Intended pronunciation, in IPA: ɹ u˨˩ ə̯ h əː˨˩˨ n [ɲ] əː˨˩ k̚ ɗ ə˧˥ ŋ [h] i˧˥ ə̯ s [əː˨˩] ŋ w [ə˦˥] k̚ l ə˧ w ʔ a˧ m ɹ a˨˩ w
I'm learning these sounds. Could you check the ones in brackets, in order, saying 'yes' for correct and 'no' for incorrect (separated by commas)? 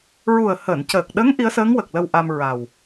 no, no, no, no